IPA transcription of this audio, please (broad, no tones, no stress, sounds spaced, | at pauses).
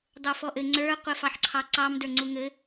dˤ ə˞ f ɔ ʔ ɘ ŋ͡ǀ ə˞ qʷ ɘ f ɑ ħ ǀʰ ɑ ǀ ɑ m d ə˞ ŋ͡ǀ u ŋ ɘ